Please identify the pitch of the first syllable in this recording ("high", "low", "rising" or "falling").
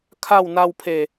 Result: falling